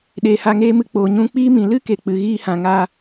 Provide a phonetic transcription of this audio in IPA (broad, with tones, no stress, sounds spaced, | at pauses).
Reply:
ɗ eː˨ h a˧ ŋ eː˦ m ɨ˧ k͡p oː˨ ɲ ũ˦ k͡p iː˦ m ĩ˨ l ɨ˦ k e˨ k͡p ɨ˨ ɣ iː˧ h ã˨ ŋ a˧